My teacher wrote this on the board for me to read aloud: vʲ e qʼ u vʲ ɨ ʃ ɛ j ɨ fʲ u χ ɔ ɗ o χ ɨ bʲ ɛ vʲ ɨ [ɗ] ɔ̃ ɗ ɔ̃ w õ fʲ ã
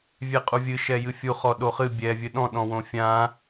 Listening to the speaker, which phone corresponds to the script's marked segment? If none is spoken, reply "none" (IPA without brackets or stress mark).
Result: ɗ